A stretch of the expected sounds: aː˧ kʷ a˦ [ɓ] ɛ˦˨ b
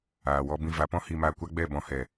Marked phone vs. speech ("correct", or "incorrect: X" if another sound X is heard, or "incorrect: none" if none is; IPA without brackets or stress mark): incorrect: ɡ͡b